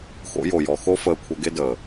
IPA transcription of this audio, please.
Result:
x o̰˨˦ j o˨ j ɔ˨ x o˦ f əː˧ kʷʰ ə˧ ɡ e˦ d əː˨

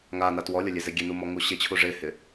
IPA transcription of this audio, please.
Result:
ŋ a n a t w ɔ lʲ ɔ lʲ e z e ɡʲ e n u m ɔ ŋ u ɕ ɪ t͡ɕʰ u ʐ ɪ h ɪ

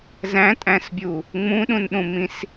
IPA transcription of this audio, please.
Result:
z æ̃ tʼ æ̃ s bʲ u | ŋ͡m ũ ɗ ũ n ɗ ũ m ĩ s

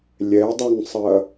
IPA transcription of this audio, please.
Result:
lʲ ɛ dˤ ø ŋ sˤ ɐ

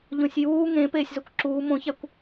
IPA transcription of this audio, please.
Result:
ʎ õ sʲ j uː ŋ ẽ p eː sʲ z o kʷ ǁ uː m õ ç æ kʷ

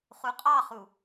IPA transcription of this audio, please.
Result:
χ u qʼ ɑ χ u

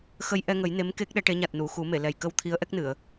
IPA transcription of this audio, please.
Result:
x ə˧ j ʔ ɛ˧ ŋ ə˨˩˦ j n e˧˥ m k e˦˥ k̚ ɗ ɛ˧˥ ʈ e˧˥ ɲ a˨˩ t̚ n u˨˩˨ x u˨˩˦ m e˨˩˨ l ɛ˨˩ j k ə˧ w t̪ʰ i˧˥ ə̯ ʔ ɛ˦˥ k̚ n ɨ˨˩˨ ə̯

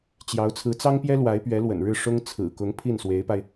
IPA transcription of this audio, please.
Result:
t͡ɕ j ɑ˧˥ ʊ̯ t͡sʰ ɹ̩˧˥ t͡s ɑ˥ ŋ p j ɛ˥ l w a˧˥ ɪ̯ p ɥ ɛ˧˥ l w ə̰˨˩ n ɻ ɻ̩˥˩ ʂ ʊ˥ ŋ t͡sʰ ɹ̩˨˩ k ʊ˧˥ ŋ pʰ i˥˩ n s w e˧˥ ɪ̯ p a˧ ɪ̯

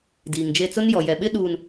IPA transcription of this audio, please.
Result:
d iː˨ ŋ d͡ʒ e˦ t͡s ʊ˦ n j ɔ˨ j ɛ˨ ɓ ɪ˦ ɗ uː˨ n

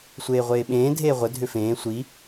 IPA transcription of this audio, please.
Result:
sʷ eː ʁʷ eː ɓ ẽː dʱ eː ʁʷ ə dʱ ʏ f ẽː sʷ i

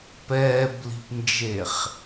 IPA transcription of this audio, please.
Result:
p ɛː b l i̤ p n d͡ʒ e χ

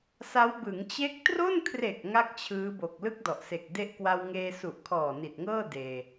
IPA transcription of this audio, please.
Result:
s a˦˥ w b ɯ˩˦ ŋ t͡ɕ e˦˥ k̚ t r o˥˩ n kʰ r e˨˩ k̚ ŋ a˥˩ k̚ t͡ɕʰ ɯː˦˥ b o˨˩ k̚ l ɯ˥˩ k̚ d ɔ˨˩ ʔ s e˨˩ k̚ d e˦˥ ʔ k w a˧ w ŋ eː˧ s u˨˩ ʔ kʰ ɔː˨˩ n i˨˩ t̚ ŋ ɤː˥˩ d eː˧

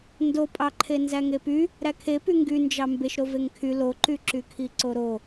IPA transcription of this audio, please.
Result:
n d o pʼ ɑ ǃʰ e n z æ ŋ e p y | ɾ æ kʰ e p y ŋ ɡ y n d͡ʒ ɑ m b e ʃ ɾ o v e ŋ kʰ y l o ǃ y ǁ y kʰ i ǀ o ɾ o

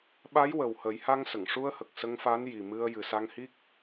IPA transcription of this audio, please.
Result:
ɓ a˧˥ j w ə˨˩ w h ə˨˩˦ j h a˧ ŋ s ə˨˩˨ ŋ ʂ u˧ ə̯ h ə˨˩ k̚ s ə˧ ŋ f a˧˥ n j i˨˩ m ɨ˧ ə̯ j ɨ˨˩ s a˧ ŋ h i˦˥ k̚

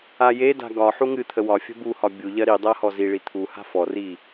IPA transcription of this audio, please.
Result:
a j e d a̤ ɡ ɒ ħ u ŋ ɨ t̪ʰ ə w ɒ fʲ ə̤ b u h ɒ bʲ u ʎ ɜ ɾ i dˤ ɜ h ɔ z i ɭ i t̪ʰ u h a̤ f ɔ r i

